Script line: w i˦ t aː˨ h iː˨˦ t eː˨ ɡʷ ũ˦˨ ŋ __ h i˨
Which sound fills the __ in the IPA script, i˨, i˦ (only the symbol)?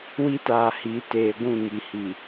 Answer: i˨